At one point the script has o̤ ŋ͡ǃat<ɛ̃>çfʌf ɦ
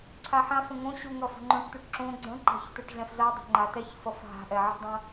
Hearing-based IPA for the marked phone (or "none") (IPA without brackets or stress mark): ɛ